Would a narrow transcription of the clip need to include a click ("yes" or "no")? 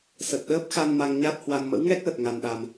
no